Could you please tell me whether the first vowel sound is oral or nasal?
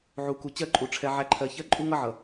oral